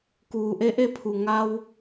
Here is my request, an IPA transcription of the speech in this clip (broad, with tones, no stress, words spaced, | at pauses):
kuː˩ʔe˧˥ʔe˧˥pʰu˩ ŋa˧w